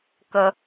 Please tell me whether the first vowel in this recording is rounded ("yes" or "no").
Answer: no